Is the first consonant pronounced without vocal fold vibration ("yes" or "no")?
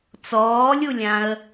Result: yes